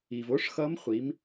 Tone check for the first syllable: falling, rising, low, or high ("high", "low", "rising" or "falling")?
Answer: low